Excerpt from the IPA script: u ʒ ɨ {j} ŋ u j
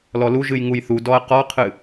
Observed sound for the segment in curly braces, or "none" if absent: j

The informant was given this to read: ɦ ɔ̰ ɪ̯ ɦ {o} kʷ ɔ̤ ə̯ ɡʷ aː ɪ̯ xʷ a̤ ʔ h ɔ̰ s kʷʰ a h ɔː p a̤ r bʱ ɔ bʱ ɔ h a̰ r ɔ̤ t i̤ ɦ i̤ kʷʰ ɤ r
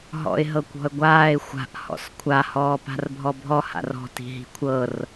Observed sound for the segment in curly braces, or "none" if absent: ɤ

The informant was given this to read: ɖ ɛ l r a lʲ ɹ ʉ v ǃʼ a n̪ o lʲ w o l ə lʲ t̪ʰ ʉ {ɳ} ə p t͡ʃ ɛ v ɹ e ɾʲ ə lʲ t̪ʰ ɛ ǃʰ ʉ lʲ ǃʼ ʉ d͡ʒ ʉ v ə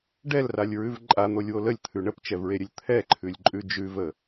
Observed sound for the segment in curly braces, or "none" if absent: ɳ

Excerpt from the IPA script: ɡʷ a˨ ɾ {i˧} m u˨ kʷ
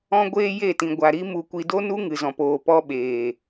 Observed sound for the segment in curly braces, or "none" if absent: i˧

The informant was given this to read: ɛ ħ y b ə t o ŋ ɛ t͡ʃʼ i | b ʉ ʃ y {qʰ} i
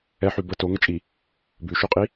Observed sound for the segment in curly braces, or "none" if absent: qʼ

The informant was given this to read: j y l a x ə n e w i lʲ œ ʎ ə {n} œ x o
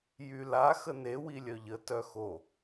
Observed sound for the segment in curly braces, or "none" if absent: t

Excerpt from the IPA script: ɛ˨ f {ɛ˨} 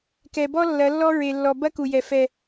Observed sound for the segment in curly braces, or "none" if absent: ɛ˦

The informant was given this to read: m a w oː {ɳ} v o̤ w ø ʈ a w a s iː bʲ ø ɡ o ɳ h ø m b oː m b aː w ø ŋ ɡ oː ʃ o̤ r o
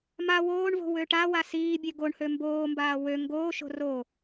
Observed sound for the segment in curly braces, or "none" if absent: ɳ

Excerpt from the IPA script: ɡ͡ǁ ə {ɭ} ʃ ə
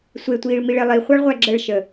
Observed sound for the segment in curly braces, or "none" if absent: ɭ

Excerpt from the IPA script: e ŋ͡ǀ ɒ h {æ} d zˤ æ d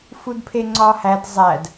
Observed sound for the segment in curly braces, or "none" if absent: æ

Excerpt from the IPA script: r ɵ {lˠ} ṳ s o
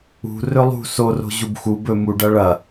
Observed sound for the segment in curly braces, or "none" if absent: lˠ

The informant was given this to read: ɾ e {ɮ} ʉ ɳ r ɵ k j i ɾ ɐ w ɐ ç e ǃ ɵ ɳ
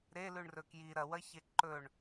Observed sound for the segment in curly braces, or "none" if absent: l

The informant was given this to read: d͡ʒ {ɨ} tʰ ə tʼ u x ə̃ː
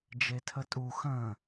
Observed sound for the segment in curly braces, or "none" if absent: e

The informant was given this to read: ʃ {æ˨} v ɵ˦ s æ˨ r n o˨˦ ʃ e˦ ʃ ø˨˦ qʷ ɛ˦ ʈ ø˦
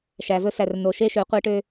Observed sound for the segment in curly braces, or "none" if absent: æ˨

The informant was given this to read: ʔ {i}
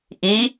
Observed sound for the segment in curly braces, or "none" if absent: i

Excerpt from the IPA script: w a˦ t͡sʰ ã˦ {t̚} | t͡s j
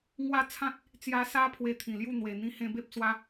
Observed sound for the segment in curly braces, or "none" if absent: t̚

